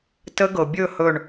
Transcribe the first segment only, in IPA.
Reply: t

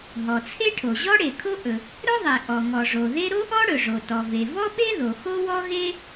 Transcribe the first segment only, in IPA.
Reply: ɦ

